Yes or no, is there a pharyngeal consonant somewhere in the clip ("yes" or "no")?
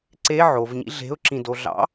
yes